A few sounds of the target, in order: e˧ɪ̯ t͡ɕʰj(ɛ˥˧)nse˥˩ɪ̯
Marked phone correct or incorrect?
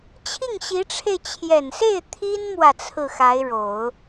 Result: incorrect